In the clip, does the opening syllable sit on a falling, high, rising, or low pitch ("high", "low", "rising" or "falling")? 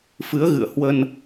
rising